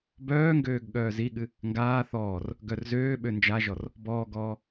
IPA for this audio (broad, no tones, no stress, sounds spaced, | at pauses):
b œː ŋ ɡ øː ɡ ɠ œː z i ɠ ɨ | ŋ ɡ aː θ ɔː r | ɡ œ r z øː ɓ ø n d͡ʒ a ʒ ɔ r | b ɔː ɡ ɔː